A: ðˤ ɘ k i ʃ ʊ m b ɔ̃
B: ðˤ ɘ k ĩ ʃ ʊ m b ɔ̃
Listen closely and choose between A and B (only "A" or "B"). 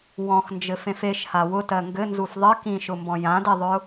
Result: B